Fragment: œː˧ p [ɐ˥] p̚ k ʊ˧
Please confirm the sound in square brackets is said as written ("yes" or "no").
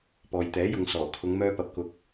no